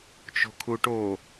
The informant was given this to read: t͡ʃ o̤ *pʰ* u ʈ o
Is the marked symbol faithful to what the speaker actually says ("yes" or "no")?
no